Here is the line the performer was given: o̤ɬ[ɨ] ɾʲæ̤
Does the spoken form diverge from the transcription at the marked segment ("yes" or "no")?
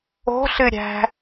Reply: no